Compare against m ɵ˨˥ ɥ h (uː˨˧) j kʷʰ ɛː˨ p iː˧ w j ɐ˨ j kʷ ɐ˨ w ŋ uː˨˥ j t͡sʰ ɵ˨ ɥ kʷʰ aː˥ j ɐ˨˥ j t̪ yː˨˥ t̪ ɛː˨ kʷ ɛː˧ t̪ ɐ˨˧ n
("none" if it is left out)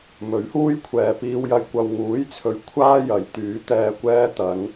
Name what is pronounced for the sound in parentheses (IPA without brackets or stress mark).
uː˥